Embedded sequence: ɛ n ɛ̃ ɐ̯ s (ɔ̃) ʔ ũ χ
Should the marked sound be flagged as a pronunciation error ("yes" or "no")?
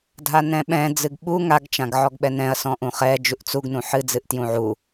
no